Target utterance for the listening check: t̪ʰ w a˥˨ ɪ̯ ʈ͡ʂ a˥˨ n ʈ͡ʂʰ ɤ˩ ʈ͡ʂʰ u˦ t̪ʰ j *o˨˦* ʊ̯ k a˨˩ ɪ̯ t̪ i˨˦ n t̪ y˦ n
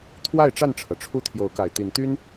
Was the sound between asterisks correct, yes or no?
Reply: yes